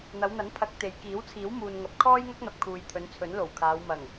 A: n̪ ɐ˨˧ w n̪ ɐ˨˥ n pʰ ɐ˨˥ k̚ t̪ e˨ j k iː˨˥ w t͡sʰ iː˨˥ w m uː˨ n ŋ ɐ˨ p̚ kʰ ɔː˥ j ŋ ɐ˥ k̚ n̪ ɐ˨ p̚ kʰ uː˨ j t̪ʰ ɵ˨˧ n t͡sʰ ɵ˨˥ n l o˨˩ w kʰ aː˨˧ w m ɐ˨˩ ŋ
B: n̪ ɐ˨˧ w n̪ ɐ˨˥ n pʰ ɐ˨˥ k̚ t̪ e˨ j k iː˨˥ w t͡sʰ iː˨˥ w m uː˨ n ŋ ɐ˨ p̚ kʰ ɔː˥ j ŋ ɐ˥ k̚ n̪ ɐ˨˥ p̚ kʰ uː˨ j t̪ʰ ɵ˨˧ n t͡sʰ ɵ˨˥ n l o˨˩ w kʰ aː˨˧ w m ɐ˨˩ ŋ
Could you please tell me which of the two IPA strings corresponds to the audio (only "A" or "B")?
A